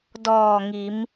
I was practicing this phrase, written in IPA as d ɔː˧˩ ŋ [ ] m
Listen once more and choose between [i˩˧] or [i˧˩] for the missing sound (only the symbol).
i˩˧